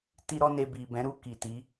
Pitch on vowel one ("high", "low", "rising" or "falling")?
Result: high